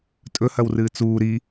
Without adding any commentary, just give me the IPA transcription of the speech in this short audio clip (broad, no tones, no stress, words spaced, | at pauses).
tʼɵhɐwrɨː t͡suː ɾi